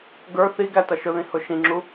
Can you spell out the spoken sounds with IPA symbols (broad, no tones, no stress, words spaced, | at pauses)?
ɡə˞ θiɡæ tʌʃʊðĩ hʊʃĩŋ͡ǁu